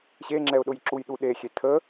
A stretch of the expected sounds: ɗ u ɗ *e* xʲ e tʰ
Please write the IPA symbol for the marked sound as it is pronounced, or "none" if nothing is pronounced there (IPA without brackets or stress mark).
e